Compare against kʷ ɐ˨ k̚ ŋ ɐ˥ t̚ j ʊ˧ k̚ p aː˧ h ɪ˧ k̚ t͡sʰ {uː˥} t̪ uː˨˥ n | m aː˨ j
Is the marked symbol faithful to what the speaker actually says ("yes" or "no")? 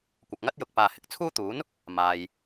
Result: yes